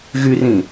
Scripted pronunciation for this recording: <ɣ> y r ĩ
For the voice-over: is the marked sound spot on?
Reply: yes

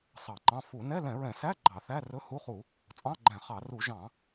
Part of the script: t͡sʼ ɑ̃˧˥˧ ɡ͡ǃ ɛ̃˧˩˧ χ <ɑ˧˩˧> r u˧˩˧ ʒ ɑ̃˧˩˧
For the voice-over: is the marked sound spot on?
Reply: yes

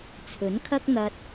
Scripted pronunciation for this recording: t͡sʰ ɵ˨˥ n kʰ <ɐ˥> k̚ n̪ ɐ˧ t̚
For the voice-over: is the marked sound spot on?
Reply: yes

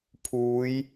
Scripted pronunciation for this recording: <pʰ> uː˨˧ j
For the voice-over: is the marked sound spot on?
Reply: yes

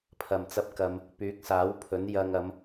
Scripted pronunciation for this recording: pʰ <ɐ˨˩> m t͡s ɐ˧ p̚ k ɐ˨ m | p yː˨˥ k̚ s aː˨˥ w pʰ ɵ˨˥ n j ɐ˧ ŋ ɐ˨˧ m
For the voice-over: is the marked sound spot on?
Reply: yes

